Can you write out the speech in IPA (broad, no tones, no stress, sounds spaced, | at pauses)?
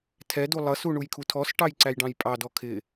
tʰ ɛ d u lˠ ʌ s u ɳ u j kʰ u tʰ ɔ s ʈ ɑ j ǀ æ j ɖ ɑ̃ j pʼ ɑ d ɔ kʰ ɪ